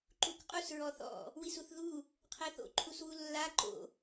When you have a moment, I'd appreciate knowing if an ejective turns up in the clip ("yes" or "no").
yes